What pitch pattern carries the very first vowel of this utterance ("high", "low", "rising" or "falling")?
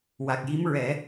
low